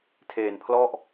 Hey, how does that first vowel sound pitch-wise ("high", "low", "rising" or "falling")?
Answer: low